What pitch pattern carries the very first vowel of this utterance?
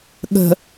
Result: low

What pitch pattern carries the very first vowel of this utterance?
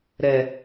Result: low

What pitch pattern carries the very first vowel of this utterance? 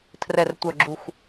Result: low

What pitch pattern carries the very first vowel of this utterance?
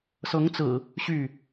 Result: rising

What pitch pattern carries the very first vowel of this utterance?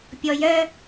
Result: low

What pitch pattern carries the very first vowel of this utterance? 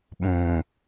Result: low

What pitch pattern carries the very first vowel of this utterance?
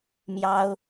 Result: high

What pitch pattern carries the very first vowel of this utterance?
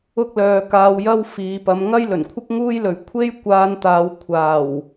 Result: high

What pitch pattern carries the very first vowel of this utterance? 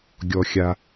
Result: low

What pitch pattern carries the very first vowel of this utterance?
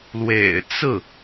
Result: low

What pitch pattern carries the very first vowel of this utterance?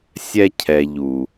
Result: high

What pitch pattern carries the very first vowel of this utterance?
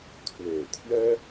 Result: low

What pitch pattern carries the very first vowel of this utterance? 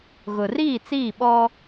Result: low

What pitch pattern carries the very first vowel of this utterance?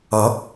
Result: rising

